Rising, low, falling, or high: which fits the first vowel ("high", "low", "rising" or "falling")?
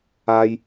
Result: high